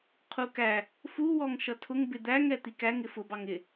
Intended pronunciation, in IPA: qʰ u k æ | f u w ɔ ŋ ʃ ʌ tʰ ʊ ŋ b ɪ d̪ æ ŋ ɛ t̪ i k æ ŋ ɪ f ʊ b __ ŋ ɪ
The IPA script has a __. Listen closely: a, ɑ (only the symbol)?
ɑ